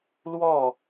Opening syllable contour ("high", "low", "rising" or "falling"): falling